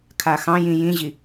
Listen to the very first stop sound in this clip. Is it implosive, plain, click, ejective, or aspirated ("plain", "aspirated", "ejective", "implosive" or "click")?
aspirated